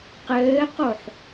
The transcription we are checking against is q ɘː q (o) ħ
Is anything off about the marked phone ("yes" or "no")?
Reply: no